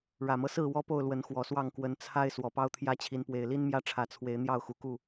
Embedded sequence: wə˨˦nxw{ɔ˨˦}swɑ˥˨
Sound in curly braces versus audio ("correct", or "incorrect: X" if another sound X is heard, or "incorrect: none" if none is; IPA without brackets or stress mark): incorrect: ɔ˨˩